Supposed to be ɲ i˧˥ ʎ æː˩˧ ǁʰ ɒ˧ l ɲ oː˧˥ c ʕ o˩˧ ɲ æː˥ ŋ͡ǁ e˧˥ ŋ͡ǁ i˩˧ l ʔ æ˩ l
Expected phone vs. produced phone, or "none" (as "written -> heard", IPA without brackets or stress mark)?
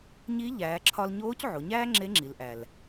none